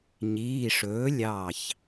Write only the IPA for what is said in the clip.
ɲ iː˩˧˩ ʂ ɵː˩˥ lʲ ɑ˧˩ ç

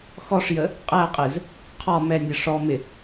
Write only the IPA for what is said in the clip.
x ɔ ʂ j ə | qʼ æ qʼ ɪ z | qʰ ɒ m ɛ nʲ ə ʂ ɔ m ɪ

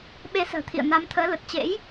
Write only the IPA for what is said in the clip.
ɓ e˧ s ə̤ː˨˩ t̪ʰ ḭ˧˨ ə̯ n a˨˦ m t̪ʰ əː˨˦ l ə˨˩ t̚ t͡ɕ ḛ˧˥ j

